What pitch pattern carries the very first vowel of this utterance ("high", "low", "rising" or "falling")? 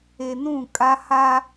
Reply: low